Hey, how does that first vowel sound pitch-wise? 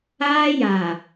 high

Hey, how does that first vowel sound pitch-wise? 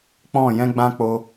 falling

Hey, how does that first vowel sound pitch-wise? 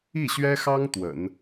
falling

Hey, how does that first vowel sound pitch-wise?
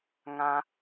high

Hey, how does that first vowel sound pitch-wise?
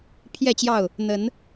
falling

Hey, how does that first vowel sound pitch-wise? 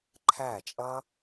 falling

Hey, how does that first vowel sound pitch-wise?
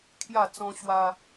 low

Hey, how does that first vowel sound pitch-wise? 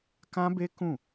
high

